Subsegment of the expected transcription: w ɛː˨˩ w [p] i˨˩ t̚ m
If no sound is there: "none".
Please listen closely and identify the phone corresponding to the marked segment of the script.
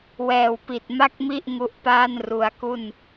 p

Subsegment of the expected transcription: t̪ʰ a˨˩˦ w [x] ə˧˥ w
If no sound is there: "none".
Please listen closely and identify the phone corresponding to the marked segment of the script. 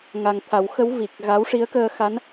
x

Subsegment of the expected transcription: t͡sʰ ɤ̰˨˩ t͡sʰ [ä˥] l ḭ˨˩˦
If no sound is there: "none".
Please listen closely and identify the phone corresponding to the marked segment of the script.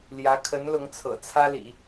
ä˥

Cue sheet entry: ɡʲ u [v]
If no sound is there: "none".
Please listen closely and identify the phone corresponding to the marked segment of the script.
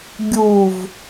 v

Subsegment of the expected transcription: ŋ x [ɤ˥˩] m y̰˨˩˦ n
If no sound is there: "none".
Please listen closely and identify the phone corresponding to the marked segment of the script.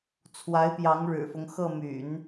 ɤ˥˩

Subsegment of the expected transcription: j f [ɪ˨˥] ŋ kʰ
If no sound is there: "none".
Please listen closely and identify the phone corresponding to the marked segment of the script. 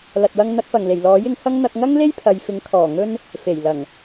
ɪ˨˥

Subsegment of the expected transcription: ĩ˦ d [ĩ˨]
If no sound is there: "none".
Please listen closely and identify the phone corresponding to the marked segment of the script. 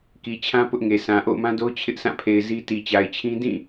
ĩ˦˨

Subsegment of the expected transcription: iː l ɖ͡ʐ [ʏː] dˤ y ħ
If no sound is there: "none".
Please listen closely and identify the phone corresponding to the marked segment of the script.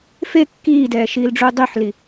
uː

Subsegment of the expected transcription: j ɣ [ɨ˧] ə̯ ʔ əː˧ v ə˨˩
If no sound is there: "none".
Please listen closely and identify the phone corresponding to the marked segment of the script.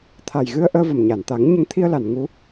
ɨ˧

